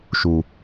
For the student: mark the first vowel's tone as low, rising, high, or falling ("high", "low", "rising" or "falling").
low